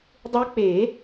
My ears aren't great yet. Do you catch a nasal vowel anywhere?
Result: no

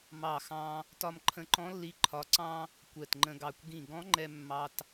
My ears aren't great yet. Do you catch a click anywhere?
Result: yes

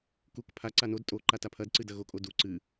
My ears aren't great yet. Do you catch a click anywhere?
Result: yes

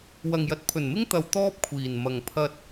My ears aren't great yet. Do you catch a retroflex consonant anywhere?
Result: no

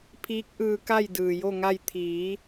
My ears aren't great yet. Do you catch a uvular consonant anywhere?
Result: no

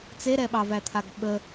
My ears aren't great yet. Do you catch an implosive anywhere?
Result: yes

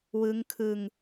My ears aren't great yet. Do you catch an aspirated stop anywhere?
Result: yes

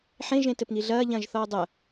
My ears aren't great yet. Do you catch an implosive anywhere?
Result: no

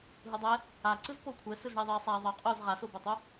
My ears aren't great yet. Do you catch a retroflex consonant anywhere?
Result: yes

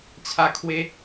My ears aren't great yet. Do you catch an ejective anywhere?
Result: no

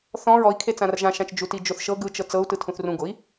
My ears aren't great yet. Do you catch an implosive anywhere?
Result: no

